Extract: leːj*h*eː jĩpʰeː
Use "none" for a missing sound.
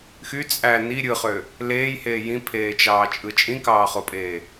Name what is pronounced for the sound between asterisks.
h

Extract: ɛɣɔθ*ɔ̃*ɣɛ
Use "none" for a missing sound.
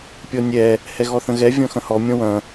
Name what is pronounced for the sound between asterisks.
ə̃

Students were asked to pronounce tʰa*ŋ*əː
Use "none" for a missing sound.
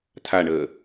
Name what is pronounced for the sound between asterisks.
ɳ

